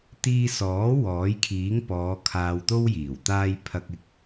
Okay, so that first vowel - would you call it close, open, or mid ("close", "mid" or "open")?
close